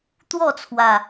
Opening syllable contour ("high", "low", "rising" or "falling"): falling